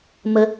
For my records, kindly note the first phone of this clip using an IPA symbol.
m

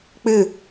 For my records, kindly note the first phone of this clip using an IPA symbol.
k͡p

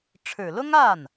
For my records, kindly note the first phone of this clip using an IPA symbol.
ʈ͡ʂʰ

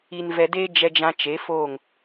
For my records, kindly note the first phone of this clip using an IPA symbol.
i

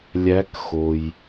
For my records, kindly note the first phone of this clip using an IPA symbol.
lʲ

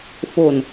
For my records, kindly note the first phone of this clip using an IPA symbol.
f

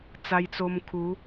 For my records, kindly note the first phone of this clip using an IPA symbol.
t͡s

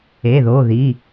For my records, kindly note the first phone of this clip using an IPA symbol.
e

